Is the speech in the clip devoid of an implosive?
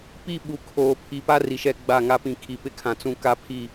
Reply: no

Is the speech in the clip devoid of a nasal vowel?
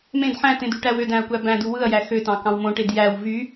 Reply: no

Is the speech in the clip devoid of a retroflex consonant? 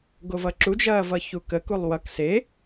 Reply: yes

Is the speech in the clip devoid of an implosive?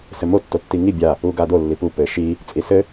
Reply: yes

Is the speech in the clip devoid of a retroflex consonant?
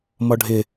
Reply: no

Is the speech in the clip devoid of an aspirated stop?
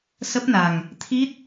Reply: no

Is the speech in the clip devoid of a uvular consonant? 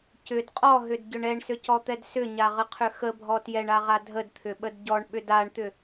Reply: no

